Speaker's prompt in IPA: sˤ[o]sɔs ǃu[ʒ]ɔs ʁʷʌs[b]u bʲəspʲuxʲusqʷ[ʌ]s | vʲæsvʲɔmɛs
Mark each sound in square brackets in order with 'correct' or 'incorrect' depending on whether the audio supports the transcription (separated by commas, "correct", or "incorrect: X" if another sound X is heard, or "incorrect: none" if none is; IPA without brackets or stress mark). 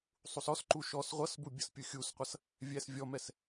incorrect: u, incorrect: ʃ, correct, correct